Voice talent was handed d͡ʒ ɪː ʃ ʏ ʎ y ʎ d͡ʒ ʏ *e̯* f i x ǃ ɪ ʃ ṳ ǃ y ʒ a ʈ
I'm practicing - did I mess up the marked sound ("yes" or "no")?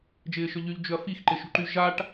yes